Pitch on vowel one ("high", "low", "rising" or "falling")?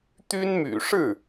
high